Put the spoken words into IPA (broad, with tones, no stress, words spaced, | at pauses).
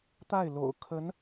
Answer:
t̪a˥˩ɪ̯lo̰˨˩ʊ̯ kʰə˧˥n